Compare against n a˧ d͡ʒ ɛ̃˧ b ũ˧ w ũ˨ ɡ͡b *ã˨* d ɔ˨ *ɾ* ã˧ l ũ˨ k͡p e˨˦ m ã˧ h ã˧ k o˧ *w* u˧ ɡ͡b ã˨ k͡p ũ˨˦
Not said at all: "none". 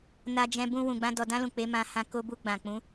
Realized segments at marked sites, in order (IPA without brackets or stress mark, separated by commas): ã˧, d, b